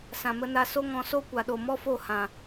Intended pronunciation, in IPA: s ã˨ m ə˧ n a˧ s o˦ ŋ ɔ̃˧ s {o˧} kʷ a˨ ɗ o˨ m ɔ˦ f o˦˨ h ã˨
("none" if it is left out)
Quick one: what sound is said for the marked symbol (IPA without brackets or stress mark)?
o˦